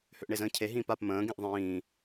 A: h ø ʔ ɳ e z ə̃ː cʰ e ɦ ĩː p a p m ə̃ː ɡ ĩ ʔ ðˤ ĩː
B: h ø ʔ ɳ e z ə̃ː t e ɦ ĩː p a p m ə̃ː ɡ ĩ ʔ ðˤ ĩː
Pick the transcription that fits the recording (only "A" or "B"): A